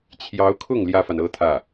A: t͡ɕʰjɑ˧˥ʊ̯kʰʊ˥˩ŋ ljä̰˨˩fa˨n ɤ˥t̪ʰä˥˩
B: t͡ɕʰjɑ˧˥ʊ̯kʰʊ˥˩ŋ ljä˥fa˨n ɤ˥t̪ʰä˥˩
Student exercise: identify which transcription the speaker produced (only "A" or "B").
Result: B